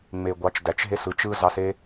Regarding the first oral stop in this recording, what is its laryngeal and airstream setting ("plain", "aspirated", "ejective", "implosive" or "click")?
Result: plain